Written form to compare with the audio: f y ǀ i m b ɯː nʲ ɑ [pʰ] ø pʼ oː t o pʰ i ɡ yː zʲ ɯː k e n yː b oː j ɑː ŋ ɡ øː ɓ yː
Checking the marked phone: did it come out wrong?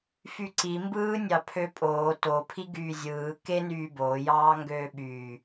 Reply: no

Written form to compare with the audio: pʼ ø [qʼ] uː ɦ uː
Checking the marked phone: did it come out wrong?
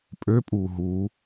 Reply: yes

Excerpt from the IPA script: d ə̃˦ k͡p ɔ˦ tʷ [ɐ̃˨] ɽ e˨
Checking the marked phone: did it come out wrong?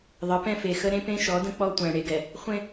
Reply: yes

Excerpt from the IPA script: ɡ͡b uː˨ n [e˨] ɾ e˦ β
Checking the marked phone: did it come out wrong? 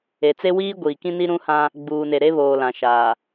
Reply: no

